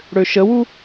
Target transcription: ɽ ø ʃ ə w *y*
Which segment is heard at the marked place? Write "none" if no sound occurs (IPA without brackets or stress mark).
u